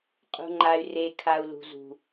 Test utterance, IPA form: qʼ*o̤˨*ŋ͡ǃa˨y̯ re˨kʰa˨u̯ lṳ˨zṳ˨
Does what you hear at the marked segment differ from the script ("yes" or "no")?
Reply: yes